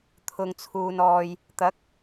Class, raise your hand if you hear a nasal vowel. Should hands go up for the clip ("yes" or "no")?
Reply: no